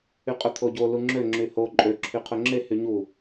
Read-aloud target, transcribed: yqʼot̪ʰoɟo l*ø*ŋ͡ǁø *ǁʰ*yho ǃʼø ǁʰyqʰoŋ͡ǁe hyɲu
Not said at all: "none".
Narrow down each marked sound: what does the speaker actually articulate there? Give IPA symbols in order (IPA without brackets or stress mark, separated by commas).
u, ŋ͡ǁ